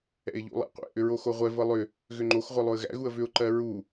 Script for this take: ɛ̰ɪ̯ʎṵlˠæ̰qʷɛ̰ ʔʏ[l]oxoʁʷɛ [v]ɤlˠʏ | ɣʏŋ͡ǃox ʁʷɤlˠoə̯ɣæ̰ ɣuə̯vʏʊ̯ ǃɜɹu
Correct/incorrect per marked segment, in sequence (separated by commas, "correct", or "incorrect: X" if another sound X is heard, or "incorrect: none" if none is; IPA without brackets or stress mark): incorrect: ɹ, correct